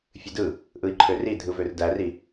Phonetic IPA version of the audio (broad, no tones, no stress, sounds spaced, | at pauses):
fʲ ɨ d ɯ | ʔ ɯ i̯ ǃʰ ø r i dʱ ɯ v ø r d æ r i